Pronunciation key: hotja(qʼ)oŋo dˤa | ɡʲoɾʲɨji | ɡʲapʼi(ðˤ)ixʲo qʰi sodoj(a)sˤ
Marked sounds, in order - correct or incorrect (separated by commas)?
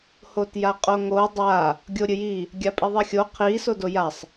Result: correct, correct, correct